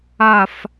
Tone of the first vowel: falling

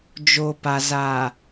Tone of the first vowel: low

